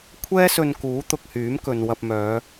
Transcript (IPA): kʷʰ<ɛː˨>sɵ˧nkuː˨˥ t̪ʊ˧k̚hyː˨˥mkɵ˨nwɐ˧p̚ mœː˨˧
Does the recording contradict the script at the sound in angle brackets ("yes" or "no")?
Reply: yes